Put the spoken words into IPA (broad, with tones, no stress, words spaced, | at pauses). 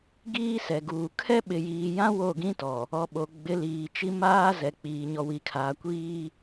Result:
ɡiː˦sɛ˨ɡuː˨ kʰɛ˦ɓɪ˨jiː˨jã˦ wo˦˨ɡĩ˦tɔ˨ | ɔ˨ɓo˨ ɡ͡bɪ˨˦liː˨t͡ʃi˦maː˦ zɛ˨k͡piː˨ ɲɔ˨wi˨kʰaː˨ kʷiː˦